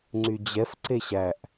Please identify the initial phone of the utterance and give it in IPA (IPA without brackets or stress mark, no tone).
ŋ͡ǀ